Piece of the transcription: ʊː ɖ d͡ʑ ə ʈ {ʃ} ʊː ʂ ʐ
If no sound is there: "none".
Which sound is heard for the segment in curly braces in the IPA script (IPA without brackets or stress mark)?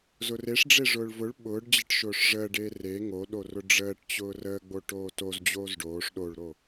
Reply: ʃ